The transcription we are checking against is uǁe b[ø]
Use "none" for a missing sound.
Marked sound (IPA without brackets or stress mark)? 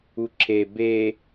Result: e